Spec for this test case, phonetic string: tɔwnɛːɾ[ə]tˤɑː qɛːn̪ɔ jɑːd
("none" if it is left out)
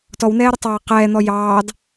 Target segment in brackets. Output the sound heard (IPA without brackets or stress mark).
ə